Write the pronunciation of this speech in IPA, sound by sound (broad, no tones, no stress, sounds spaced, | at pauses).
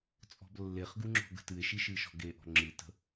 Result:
t͡sʼ ɔ̤ b lː e χ ɡ u ŋ͡ǁ ɔ̤ ɡ ə̤ t ɨ e̯ ʃ i ʃ ɨ ʃ ɔ̤ ɡ e ʔ ɔ̤ ŋ͡ǁ ɨ t ə̤